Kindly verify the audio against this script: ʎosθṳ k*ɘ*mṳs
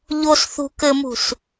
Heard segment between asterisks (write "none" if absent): ɘ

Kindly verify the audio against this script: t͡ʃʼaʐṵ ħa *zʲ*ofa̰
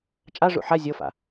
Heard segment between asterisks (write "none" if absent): zʲ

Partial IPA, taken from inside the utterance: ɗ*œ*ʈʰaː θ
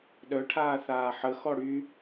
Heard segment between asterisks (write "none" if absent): œ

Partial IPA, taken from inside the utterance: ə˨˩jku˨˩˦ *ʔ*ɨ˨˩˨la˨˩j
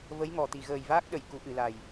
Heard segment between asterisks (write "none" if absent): ʔ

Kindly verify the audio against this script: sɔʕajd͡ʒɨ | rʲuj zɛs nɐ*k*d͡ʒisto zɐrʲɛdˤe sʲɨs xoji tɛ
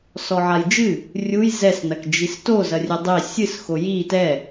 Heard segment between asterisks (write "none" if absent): k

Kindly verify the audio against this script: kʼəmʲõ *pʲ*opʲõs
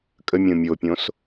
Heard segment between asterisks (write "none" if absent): mʲ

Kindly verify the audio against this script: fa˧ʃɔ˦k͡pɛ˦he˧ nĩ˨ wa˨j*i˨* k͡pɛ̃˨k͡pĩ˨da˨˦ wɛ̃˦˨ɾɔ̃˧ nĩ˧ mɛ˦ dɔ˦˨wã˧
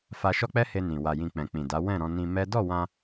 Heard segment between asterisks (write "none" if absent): ĩ˨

